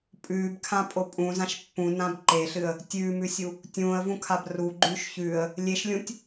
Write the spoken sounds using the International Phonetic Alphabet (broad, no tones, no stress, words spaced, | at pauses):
pʼʉːbkʰãpʼo pʼũzãʃ pːũnãb ǃeɬɨə̯ | tʲʉːmʉsʲu | tʲũːə̯vũkʰab ruɡ͡ǃʉːʃ çʉə̯ | lʲeʃlʲũtʲ